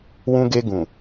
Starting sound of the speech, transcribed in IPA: w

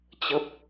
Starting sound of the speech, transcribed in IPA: t͡ɕ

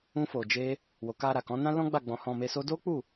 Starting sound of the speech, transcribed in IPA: ũ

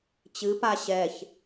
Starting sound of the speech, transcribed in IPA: t͡ɕ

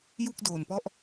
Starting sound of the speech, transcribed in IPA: j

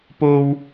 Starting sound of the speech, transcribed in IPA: p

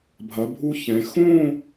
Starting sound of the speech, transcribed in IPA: bʱ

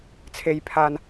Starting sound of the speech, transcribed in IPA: t͡sʰ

